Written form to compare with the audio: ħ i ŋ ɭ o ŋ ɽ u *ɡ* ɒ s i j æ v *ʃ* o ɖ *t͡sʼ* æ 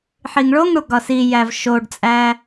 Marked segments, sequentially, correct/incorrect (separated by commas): correct, correct, correct